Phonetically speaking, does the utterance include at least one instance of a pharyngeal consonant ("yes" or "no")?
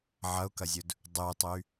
yes